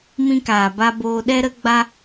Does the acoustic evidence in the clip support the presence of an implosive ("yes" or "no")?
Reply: yes